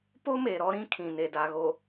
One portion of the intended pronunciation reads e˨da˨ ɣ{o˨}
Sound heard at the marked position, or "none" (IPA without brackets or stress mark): o˨